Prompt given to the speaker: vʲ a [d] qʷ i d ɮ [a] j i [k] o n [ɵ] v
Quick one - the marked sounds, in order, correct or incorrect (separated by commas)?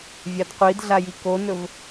correct, correct, correct, correct